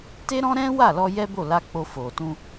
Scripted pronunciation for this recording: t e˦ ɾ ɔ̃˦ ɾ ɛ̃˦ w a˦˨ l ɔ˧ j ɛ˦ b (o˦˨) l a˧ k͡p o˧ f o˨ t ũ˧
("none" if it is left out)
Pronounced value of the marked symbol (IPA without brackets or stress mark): o˦˨